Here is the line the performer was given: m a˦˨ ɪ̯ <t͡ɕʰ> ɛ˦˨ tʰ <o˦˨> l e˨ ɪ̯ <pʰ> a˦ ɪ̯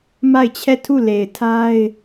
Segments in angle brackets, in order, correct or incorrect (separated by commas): correct, incorrect, incorrect